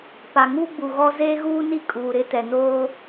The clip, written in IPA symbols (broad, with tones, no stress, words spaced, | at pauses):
pa˨ŋu˦ɡ͡bu˨ ɣɔ˦ zeː˦ɣuː˦ni˦ kʼuː˨ɾɪ˦tɛ˨ noː˦